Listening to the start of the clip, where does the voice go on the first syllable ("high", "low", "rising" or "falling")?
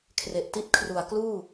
low